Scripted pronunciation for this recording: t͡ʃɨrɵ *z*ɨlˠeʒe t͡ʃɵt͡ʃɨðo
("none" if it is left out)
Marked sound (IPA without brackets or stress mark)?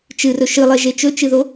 ʃ